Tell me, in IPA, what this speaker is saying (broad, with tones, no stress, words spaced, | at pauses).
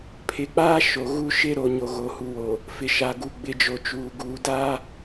pʰɪ˨k͡paː˦ ʃo˨ɣu˦ ʃɪ˦ ɾo˨ ɲo˨ ɣo˨hu˨wo˨ | fɪ˨ʃa˨ ɡu˨ ɡ͡bɪ˨d͡ʒo˨t͡ʃuː˨ ɡuː˨da˦